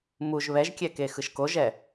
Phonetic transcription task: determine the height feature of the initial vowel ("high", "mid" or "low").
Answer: high